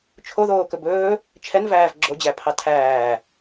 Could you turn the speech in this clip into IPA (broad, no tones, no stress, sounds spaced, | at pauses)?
t͡ʃʰ o ð oː k ɵ b ɵː | t͡ʃʰ ɛ n v æː v ɡ͡ǁ o d͡ʑ æ pʰ ɑ tʰ æː